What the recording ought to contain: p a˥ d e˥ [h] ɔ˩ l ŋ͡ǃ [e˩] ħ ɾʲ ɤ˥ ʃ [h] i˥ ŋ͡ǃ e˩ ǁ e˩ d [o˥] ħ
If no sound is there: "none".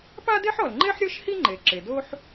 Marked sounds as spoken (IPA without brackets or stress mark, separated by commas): ħ, e˥, h, o˥